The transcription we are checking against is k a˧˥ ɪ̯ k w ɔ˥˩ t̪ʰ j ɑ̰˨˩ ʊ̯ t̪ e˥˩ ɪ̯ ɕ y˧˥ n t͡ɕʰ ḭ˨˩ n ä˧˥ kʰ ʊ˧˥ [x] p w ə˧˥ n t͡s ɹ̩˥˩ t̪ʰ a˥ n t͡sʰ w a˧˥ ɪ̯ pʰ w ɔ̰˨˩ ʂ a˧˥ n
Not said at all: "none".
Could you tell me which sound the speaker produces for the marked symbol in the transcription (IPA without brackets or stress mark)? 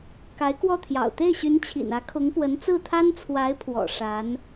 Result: ŋ